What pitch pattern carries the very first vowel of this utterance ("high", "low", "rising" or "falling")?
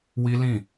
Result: high